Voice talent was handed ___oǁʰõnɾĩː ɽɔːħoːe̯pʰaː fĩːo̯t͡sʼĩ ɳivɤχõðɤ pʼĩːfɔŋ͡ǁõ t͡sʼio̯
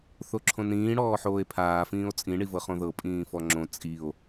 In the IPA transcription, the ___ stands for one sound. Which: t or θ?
θ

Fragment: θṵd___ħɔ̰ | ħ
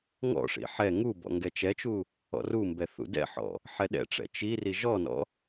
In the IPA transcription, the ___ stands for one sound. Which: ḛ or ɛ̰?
ɛ̰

